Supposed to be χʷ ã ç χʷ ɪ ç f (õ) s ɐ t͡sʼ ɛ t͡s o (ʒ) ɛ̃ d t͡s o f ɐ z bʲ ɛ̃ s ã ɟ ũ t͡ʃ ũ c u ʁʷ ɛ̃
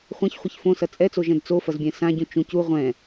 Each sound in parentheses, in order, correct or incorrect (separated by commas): correct, correct